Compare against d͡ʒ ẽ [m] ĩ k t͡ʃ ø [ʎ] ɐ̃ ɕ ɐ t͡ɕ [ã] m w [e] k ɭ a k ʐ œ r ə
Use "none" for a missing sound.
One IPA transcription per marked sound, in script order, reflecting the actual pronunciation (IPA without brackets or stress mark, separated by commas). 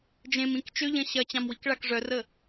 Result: m, ʎ, ã, i